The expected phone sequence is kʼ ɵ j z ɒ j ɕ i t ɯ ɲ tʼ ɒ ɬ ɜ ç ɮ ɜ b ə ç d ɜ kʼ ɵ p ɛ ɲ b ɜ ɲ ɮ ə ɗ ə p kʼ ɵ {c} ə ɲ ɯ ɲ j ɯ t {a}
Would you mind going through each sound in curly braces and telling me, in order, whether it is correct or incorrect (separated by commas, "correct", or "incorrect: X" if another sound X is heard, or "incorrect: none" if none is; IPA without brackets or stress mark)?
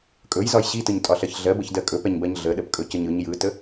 correct, incorrect: ə